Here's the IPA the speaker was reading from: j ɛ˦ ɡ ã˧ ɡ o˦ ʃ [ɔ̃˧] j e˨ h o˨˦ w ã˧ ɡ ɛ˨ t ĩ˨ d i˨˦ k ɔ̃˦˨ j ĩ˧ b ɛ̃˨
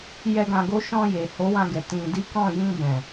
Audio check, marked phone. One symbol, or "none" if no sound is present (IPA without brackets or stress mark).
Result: ɔ̃˧